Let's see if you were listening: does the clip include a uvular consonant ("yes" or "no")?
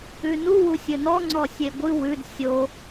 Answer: no